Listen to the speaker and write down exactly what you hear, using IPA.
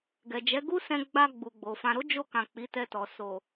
ɡɛ˨d͡ʒɛ˨˦ɡu˦sɛ̃˧ ɡ͡ba˧ ɡ͡bu˨ɡ͡bo˨fã˧ ɾo˦d͡ʒo˧kã˨ k͡pi˨˦tɛ˧tɔ˨ so˨

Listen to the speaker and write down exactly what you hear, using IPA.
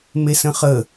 mesə̃χə

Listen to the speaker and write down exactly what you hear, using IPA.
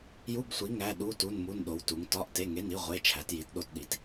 ju˧˥˧bsʷi˨˥ ŋæ˧˥˧ ɗu˧˥˧ tu˧˥˧nmu˧˥˧nɗo˨˥wtu˨˥ŋ tɒ˧˥˧ʔte˧˥˧ŋe˧˥˧ni˧˥˧ ʁʷe˧˥˧ t͡ʃʰæ˨˥tji˨˥tɗo˧˥˧tɗi˨˥t

